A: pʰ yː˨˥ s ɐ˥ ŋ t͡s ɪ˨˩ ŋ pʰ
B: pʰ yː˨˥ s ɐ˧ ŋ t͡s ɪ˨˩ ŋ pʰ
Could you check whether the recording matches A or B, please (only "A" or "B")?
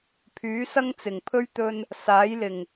A